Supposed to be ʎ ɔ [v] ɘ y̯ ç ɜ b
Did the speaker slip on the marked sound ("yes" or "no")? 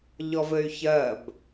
no